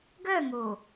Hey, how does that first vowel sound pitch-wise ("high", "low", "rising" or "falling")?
falling